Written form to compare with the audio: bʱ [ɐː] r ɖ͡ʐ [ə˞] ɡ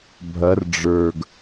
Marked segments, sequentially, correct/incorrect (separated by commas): incorrect, correct